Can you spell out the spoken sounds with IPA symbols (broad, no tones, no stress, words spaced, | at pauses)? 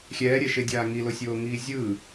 xʲɛːɾʲɛʃedʲaː ŋilosʲoːŋiː zʲɯ